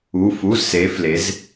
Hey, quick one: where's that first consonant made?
lips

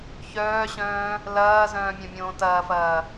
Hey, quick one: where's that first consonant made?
palate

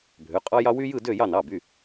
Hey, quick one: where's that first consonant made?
lips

